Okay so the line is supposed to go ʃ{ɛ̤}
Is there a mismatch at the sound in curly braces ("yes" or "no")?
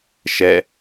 yes